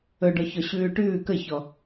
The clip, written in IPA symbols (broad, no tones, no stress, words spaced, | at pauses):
ɵɖɔ çɔɕʉːʈʉː kəçɔ